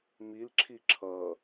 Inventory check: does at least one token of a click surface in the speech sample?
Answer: yes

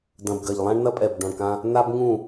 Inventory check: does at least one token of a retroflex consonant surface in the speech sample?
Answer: yes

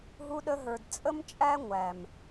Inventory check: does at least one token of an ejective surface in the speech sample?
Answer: yes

